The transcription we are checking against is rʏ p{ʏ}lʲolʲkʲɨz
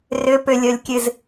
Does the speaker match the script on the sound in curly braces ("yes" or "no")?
yes